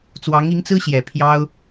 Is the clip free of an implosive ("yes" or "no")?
yes